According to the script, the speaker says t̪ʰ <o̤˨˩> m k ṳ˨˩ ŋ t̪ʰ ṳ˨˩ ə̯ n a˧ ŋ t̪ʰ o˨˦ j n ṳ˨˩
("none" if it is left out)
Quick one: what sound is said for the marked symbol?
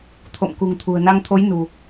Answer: o̰˧˨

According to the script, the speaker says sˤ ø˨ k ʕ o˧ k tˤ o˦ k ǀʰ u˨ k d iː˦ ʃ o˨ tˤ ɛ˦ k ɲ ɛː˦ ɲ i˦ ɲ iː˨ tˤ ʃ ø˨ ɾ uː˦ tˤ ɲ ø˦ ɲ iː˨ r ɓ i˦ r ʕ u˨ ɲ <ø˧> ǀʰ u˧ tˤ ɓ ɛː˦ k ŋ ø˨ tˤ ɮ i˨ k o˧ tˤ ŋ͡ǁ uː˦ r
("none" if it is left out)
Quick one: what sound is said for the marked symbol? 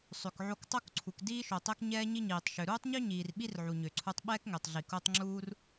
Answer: ø˨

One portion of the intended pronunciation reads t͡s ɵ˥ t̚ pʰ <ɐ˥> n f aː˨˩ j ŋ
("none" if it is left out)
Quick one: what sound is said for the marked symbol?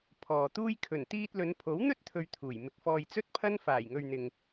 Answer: ɐ˥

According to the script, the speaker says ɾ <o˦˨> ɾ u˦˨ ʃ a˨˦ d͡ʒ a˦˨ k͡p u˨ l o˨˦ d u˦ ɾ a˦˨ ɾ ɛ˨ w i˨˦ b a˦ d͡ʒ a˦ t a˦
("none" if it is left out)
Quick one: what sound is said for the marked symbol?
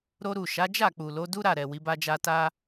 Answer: o˦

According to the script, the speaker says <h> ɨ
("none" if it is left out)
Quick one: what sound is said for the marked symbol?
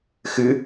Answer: x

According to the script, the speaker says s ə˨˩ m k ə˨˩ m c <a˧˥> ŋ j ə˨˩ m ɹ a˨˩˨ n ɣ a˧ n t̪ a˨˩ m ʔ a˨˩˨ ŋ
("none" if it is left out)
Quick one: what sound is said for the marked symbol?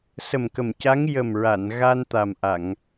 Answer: a˧˥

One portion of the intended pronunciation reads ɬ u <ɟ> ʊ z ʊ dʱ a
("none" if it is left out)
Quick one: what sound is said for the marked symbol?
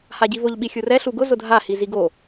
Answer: ɡ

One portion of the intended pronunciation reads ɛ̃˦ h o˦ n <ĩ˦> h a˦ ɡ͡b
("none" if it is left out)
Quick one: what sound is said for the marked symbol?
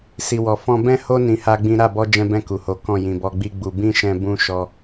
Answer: ĩ˧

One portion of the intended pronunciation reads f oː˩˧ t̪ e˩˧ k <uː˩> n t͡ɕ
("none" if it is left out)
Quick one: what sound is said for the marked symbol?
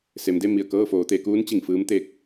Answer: uː˧˥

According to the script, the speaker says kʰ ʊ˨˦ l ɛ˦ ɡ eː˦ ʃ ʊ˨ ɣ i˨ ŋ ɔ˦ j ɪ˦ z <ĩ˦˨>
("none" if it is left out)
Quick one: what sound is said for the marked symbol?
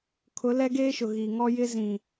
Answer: ĩ˨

